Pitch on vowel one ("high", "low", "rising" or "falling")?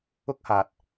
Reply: high